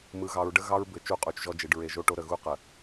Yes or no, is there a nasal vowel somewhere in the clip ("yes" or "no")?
no